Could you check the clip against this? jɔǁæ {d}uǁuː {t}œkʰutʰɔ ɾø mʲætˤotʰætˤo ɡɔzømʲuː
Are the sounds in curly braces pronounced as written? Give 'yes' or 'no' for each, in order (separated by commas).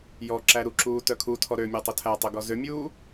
no, yes